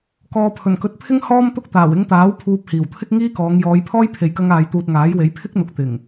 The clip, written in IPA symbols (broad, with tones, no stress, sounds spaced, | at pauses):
k ɔː˨ pʰ ɵ˨˩ n k ɵ˨˥ t̚ pʰ ɪ˥ ŋ h ɔː˥ m t̪ ʊ˥ k̚ t̪ aː˨˩ w ɪ˧ ŋ t̪ aː˨˥ w pʰ uː˧ p̚ h iː˨˩ w t̪ʰ ɪ˥ k̚ ŋ iː˥ k ɔː˨˧ ŋ j ɔː˨˧ j pʰ ɔː˥ j pʰ e˨ j k ɐ˧ ŋ aː˨ j t̪ uː˨ t̚ ŋ aː˨˥ j w e˨˥ j pʰ ɪ˥ k̚ n̪ ʊ˨ k̚ t̪ ɪ˨˩ ŋ